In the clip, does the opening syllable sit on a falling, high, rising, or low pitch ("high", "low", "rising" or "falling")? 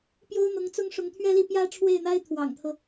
high